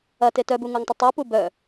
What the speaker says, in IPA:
ɐ t e t œ b u ŋ o ŋ tˤ ə tˤ o p u b œ

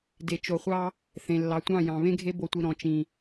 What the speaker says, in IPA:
d e˨ t͡ʃ o˨ χʷ ɑ˦ | θ ẽ˨ lː ɑ˨ tʷ ɑ̃˦˨ j ɑ̃˨ β ẽ˦ ɡʱ e˦ b o˨ tʷ i˨ ɾ ɔ̃˨ t͡ʃ ĩ˨

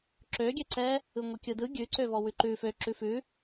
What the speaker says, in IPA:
ǁ ø ɡʲ ɛ ǀ ɛ | ɯ ŋʷ ɛ kʲ ɯ d ɯ ɡʲ ʉ ǀ ø v ɔ w ʉ ǃ ʉ f ø ǁ ʉ f ʉ

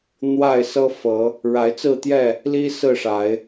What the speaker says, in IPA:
n̪ w a˥˨ ɪ̯ s ɤ˦ f ɤ˨˦ | ɻ a˨˦ ɪ̯ t͡s ɹ̩˥˨ t̪ j ɛ˥˨ | l i˦ s ɹ̩˥˨ ʂ a˨˦ ɪ̯

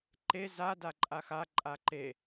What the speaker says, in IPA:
ǃ e z a d a ǃʼ a x a ǃʼ a ǃ e

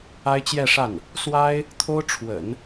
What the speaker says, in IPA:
a˥ ɪ̯ t͡ɕ j ɛ˥˧ ʂ a˥˩ n | s w a˥ ɪ̯ | t̪ʰ o˥ ʊ̯ ʈ͡ʂʰ w ə̰˨˩˦ n

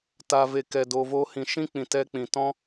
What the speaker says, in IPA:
t a˨ v e˨ k ɛ˨ d o˨ v o˧ h ĩ˨ ʃ ĩ˦ k͡p ĩ˨ t ɛ˧ k͡p ĩ˨ t ɔ̃˦

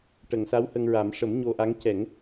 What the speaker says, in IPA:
ʈ ə˨˩˨ ŋ s a˧˥ w h ə˧ ŋ ɹ a˨˩˦ m ʂ ə˨˩˦ m ɲ o˧ ʔ a˧˥ ŋ c ɛ˨˩˦ ŋ

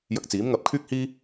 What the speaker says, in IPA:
j ɐ˧ k̚ t͡s iː˨˥ m ŋ ɐ˧ p̚ kʰ yː˥ k̚ h iː˥

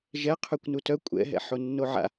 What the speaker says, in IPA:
ʒ ɛ qʰ y kʷ n u t œ kʷʼ ɛ̰ ɦ ɛ̰ ħ o nː o ʕ a̰

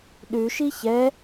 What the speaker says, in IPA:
ɗ ʉ ʃ i ç ɛ

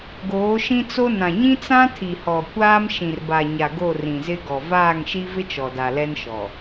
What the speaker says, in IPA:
ɡ oː˨˦ ʃ ĩ˦ t͡s o˦ n ã˨ ɲ ĩ˦ t͡s ã˦ tʰ i˨ h ɔ˨ kʷ aː˦ m ʃ ĩ˨ r b a˨ ɲ a˨ ɡ o˦˨ r ĩ˨ z ɪ˦ ɡ ɔ˨ v aː˦˨ ŋ ʃ i˦ v ɪ˦ t͡ʃ ɔ˨ d a˨ l ɛ˦ n ʃ ɔ˨

